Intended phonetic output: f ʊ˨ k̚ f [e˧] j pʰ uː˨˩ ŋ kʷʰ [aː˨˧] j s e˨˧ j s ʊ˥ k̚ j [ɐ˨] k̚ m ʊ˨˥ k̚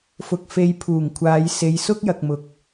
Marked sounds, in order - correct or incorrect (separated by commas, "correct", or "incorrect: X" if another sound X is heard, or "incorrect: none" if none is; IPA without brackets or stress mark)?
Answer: incorrect: e˨, correct, correct